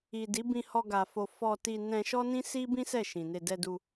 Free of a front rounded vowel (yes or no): yes